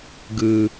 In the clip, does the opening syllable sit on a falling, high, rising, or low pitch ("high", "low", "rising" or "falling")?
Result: low